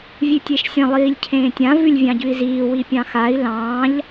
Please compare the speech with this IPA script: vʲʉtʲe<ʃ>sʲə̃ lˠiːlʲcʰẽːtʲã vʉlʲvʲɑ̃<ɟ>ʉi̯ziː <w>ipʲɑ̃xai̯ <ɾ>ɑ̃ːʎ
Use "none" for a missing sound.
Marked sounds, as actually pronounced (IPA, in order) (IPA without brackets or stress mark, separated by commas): ʃ, ɟ, w, l